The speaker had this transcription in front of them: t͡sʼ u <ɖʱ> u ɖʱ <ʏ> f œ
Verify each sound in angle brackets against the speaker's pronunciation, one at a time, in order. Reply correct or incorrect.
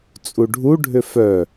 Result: correct, correct

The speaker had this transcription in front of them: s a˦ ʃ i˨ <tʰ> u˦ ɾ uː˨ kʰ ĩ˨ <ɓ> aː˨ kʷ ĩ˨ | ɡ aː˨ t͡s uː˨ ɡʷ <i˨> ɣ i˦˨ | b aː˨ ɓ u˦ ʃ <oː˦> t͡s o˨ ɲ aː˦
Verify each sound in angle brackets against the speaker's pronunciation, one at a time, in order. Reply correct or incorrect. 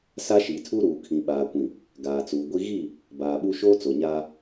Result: correct, correct, incorrect, correct

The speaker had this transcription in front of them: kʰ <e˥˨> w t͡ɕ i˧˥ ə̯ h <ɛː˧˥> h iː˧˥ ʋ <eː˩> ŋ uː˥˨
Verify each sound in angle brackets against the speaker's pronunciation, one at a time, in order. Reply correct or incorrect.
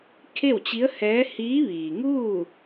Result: correct, correct, incorrect

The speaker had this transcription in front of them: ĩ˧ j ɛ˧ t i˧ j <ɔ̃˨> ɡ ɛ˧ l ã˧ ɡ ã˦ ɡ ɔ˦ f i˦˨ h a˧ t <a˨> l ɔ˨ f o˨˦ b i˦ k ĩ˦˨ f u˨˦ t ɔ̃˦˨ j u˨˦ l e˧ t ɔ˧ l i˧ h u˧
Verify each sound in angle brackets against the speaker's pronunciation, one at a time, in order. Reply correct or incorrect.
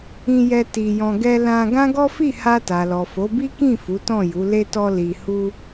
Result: incorrect, correct

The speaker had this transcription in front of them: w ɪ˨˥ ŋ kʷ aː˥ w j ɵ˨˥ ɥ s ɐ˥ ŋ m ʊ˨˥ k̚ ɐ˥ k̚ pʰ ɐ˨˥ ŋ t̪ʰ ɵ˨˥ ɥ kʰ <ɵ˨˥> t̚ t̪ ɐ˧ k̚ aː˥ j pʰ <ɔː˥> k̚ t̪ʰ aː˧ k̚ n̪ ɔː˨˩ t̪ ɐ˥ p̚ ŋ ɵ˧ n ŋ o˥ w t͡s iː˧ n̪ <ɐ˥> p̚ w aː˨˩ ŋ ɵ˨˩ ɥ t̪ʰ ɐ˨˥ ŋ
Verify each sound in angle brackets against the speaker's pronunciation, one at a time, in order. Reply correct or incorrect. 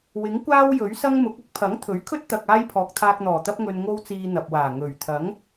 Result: incorrect, incorrect, incorrect

